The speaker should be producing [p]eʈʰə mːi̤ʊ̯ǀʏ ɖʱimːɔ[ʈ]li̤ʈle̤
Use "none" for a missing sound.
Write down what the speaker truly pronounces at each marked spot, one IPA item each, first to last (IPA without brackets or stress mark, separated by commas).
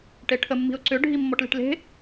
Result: ʈ, ʈ